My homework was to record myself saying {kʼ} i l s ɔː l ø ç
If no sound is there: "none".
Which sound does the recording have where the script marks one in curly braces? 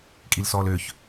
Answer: kʼ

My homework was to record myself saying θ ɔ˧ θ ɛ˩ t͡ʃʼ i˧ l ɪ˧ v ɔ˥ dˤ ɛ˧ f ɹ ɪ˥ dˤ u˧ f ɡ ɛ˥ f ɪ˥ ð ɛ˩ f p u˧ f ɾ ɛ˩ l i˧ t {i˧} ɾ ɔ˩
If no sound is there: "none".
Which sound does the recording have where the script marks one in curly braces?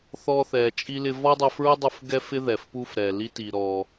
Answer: i˩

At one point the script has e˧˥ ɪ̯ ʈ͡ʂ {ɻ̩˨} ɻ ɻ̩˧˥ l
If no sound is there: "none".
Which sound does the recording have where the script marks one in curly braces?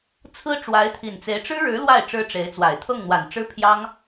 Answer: ɻ̩˥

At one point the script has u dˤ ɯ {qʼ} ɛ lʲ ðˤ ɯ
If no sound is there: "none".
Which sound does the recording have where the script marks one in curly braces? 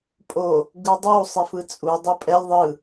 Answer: pʼ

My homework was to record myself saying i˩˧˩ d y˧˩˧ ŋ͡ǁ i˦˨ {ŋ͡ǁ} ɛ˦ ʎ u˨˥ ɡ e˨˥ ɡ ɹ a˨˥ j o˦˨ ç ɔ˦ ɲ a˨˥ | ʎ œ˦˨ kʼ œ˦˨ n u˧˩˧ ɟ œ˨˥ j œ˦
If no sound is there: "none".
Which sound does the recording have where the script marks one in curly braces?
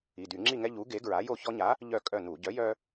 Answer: ŋ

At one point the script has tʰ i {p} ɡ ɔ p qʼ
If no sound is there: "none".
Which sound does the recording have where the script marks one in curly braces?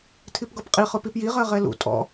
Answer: p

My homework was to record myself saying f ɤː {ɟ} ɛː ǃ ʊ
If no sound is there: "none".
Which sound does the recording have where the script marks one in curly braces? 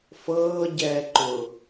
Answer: ɟ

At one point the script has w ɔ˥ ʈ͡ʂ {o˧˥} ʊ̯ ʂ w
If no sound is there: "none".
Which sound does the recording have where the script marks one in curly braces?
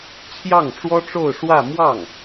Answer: o˥˧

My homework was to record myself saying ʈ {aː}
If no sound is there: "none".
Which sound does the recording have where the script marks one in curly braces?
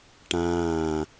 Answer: ãː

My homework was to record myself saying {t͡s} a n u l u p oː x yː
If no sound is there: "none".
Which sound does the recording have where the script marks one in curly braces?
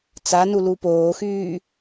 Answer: t͡s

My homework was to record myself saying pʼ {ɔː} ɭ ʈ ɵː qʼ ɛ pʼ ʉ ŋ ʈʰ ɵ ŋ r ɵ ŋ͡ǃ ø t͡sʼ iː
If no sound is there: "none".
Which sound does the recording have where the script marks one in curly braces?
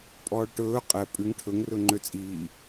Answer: ɔː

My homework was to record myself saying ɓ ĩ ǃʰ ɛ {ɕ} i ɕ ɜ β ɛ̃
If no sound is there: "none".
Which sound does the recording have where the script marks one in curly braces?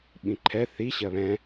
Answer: θ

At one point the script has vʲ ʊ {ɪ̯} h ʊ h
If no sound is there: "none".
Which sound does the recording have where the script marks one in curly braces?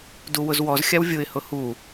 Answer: ɪ̯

